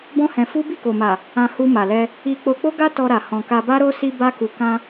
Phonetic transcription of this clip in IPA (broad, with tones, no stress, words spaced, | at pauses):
bɔ̃˦hɛ̃˧ fu˦ bi˦˨ko˨ma˨ | ã˧hu˧ ma˨lɛ˧ | i˧k͡po˧k͡po˦ɡa˦ tɔ˧ɾa˨ hɔ̃˨ka˧ba˦ɾo˦ si˧ba˧ku˨kã˧